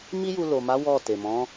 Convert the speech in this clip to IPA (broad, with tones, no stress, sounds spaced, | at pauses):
m i˦ j u˧ l o˨ m a˨˦ w ɔ˦˨ t e˨ m ɔ̃˨˦